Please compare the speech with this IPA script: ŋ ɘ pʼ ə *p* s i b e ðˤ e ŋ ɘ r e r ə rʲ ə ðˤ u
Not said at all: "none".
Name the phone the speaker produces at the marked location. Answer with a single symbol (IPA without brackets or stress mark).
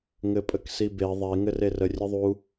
k